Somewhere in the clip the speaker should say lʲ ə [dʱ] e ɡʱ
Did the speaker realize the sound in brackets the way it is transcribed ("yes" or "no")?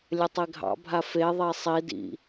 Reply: no